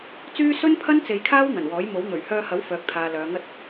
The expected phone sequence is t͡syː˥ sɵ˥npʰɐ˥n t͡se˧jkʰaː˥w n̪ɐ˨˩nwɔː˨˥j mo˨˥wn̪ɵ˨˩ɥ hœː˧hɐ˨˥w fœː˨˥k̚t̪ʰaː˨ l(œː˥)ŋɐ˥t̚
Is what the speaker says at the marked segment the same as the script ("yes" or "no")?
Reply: no